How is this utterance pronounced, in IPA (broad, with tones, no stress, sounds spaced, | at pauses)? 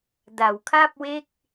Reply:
d a˩˦ w kʰ a˥˩ p̚ w e˥˩ k̚